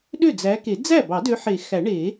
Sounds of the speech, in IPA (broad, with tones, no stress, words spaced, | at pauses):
ɗø˥˩d͡zæ˨˦ke˨˩˦ d͡zæ˥˩bɑ˨˩˦dø˨˦ħe˨˩˦ xæ˨˩˦ɳe˨˩˦